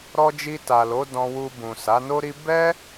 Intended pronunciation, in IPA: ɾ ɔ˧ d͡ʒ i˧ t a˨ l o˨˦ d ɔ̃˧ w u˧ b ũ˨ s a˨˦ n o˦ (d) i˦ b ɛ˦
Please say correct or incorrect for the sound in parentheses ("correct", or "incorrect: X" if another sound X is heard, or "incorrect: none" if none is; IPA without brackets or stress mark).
incorrect: ɾ